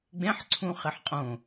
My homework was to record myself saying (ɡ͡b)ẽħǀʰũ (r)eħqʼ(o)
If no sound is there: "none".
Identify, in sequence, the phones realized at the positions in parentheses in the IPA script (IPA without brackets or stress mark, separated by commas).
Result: ɡ͡b, χ, õ